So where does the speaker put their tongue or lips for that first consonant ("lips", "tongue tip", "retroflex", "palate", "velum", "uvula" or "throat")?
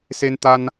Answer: tongue tip